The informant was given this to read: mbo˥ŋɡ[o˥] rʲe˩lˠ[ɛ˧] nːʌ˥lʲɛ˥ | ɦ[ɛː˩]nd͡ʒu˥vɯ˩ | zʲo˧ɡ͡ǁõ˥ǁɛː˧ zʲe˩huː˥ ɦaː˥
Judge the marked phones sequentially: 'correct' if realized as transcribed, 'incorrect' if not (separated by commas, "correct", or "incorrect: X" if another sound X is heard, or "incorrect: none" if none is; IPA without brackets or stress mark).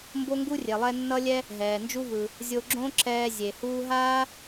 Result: incorrect: u˥, correct, correct